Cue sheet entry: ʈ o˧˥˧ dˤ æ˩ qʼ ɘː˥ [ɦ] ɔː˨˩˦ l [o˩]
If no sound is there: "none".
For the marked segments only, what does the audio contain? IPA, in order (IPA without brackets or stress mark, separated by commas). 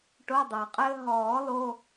ɦ, o˧˥˧